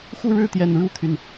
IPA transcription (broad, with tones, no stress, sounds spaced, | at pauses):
x u˥˨ ɻ ɻ̩˥˨ t̪ j ɛ˨˩ n ɻ u˥˨ t̪ʰ y˩ n